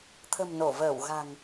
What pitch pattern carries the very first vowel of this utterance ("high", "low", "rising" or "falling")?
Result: low